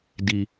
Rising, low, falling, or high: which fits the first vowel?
low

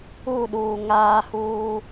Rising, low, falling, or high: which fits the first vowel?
falling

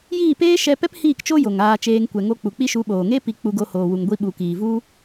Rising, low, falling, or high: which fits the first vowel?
falling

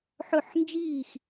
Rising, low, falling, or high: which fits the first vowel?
falling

